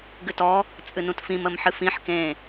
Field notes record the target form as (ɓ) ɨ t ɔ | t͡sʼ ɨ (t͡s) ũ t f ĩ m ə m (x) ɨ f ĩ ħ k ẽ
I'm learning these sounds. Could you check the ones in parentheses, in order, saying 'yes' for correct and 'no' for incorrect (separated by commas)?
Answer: no, no, no